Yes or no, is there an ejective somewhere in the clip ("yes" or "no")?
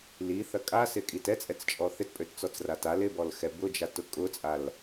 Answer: yes